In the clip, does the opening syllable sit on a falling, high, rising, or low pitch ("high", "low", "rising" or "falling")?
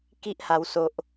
high